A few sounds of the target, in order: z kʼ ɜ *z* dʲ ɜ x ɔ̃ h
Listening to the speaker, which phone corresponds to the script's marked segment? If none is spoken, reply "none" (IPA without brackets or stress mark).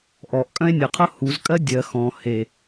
none